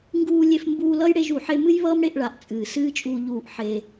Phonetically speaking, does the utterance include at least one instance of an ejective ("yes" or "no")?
yes